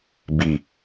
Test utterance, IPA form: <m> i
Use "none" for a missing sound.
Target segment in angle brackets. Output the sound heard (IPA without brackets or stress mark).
b